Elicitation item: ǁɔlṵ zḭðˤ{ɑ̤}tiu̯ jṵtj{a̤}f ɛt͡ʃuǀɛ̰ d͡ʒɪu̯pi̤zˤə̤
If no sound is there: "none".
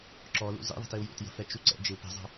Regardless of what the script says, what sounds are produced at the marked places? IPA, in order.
ə̤, ə̤

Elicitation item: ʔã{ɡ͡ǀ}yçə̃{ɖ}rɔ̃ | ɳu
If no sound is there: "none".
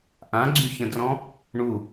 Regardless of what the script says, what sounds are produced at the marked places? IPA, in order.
ɡ͡ǀ, d

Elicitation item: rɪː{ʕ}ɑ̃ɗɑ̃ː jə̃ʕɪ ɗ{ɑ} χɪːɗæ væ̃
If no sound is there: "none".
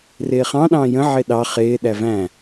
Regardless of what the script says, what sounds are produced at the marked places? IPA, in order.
χ, ɑ

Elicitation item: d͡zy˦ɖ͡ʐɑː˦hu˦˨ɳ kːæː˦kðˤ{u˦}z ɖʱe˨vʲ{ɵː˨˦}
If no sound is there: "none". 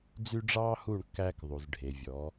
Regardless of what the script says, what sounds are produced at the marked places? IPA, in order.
u˨, ɔː˨˦

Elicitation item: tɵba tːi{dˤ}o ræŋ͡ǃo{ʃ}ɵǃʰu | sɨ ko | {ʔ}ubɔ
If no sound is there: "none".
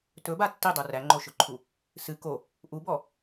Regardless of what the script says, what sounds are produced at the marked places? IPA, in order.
dˤ, ʃ, ʔ

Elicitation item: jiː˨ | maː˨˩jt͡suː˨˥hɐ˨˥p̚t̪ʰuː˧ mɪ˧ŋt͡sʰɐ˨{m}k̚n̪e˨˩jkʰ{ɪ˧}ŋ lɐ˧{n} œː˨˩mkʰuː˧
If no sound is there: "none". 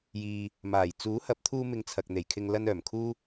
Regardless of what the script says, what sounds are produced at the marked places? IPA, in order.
none, ɪ˧, n

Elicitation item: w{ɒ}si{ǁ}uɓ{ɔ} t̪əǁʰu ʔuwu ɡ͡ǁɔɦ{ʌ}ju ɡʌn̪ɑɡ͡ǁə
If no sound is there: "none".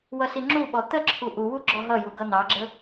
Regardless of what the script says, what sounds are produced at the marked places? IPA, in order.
ʌ, ŋ͡ǁ, ɔ, ʌ

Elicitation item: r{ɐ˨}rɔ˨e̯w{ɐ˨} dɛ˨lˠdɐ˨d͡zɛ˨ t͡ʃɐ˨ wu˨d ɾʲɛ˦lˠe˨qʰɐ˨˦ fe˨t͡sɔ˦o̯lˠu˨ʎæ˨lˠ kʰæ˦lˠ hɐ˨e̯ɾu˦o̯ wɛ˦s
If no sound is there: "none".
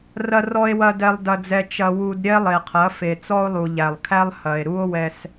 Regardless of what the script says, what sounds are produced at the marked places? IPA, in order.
ɐ˨, ɐ˨

